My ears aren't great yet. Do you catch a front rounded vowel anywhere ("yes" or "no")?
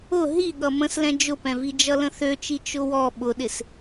yes